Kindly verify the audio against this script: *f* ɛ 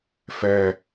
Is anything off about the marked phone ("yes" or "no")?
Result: no